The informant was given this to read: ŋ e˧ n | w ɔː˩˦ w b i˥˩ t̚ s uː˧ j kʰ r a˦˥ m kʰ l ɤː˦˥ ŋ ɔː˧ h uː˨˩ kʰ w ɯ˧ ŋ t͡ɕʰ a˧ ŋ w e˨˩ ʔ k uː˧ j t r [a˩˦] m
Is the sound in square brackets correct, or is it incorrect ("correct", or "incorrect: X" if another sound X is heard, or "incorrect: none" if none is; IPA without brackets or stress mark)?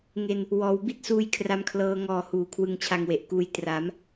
correct